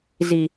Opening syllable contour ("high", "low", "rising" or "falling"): high